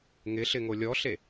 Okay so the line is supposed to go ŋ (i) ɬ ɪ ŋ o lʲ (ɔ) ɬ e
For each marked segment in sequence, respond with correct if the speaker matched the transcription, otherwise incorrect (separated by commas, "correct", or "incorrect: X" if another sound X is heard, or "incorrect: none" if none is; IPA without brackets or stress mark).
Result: incorrect: ɪ, correct